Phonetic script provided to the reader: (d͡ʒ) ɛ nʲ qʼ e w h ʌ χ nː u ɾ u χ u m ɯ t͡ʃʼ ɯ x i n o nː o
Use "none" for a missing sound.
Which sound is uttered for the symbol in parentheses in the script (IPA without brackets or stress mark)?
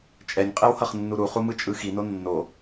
t͡ʃʼ